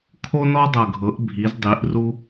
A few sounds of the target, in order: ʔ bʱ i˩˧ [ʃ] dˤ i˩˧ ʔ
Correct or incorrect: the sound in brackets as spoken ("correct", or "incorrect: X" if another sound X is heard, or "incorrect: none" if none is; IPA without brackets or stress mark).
incorrect: z